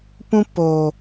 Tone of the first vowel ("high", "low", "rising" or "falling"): high